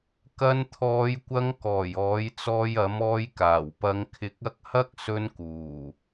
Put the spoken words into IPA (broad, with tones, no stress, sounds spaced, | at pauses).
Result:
k ɐ˧ n t̪ʰ ɔː˨˧ j kʷ ɐ˧ ŋ k ɔː˨˩ j ɔː˨˥ j t͡s ɔː˧ j ɐ˨˥ m ɔː˧ j k aː˨˩ w p ɐ˧ ŋ kʰ ɪ˧ k̚ ɐ˥ k̚ h ɐ˥ k̚ s ɵ˧ n k uː˨˩